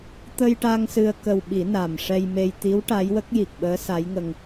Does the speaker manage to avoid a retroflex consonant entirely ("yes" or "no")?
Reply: no